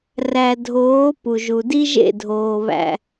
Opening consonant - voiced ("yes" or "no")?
yes